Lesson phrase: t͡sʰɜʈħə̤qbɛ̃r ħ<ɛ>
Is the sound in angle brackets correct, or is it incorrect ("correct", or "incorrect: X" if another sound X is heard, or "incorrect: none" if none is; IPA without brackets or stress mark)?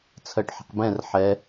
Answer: correct